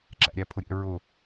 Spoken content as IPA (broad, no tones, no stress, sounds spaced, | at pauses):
ǁ æ̰ ɾʲ æ pʰ ʊ ɾʲ ɛ̰ ɹ ʊ